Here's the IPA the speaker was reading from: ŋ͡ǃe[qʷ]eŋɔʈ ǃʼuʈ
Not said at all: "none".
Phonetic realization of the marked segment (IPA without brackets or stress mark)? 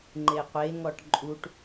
qʷ